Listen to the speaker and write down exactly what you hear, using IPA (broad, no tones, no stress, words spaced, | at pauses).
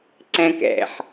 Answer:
ǀæ̃kæ̰ħ